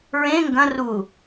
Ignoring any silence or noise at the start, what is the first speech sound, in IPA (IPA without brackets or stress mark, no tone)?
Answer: ɹ